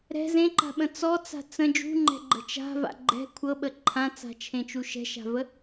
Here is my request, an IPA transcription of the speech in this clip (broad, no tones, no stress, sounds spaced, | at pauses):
ɾ ɛ̤ z ẽ ǃ a̤ ɓ ə̃ t͡s ɔ t͡s a̤ t͡s ə̃ d͡ʒ ṳ ŋ͡ǃ ɛ̤ ɡ͡ǃ ə̤ t͡ʃ a̤ v a̰ ɡ͡ǃ ɛ̤ kʷʰ ɤ ɓ ə ǃʰ ã t͡s a̤ t͡ʃʰ ẽ t͡ʃ u ʃ ɛ̤ ʃ a̤ v ə